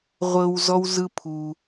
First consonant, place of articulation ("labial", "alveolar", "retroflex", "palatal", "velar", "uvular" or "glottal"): uvular